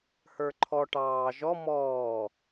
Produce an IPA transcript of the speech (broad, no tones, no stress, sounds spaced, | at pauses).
h ə˞ ǃʰ ɔ ʈ ɑː ʒ ɔ m ɔː